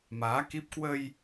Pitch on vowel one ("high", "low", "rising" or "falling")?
rising